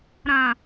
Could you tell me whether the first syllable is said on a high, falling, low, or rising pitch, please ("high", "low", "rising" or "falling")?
low